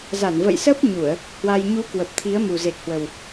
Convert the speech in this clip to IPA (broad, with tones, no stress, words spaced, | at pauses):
za˧˩n və̰˧˨jsə˦˥p̚ ɲu˧˩˨ə̯ | hwa˧j ɲu˨˦ kwə˨˩p̚t̪ʰi˨˦ə̯mu˨˩ ze˨˩k̚hwə˨˩w